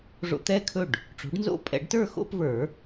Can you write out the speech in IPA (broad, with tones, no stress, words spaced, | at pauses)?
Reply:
ʐo̰˧t̪ɛ˥˩kʰɵ˥˩ɖ | ʈ͡ʂo̤˩˥ɖnzo̰˥˧ pʼɛ̰˨˩˦ɖtə˞˥˩xo̰˥˧p və˞˨˩˦